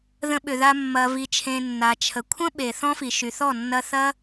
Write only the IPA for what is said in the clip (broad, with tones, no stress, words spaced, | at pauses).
ðə̃˧ɓʏ˨ða˧ mːɐ˨vi˨t͡ʃʰẽ˨ nːa˨t͡ʃʰə˨ kʷʰə̃˦ɓe˨ θɔ̃˦fi˨ʃy˨θɔ˦˨ nːɐ˧θɐ˦